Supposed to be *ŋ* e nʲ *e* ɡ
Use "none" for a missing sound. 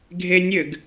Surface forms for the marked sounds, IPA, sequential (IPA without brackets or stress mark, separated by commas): ɡʱ, ɘ